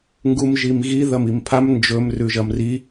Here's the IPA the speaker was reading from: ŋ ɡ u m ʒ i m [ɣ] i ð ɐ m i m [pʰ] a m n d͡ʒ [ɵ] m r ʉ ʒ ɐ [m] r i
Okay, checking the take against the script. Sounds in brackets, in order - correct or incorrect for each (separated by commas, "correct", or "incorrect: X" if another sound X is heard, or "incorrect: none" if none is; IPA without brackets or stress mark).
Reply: correct, correct, correct, correct